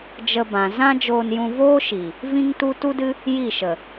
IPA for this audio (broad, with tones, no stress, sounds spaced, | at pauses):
d͡ʒ ə˧ b ã˨ z ã˦ d͡ʒ oː˧ n j ũ˧ v oː˦ ʃ i˨ | v ĩ˦ ŋ t u˦ t u˦ d ɨ˦ | j i˦˨ ʃ ə˨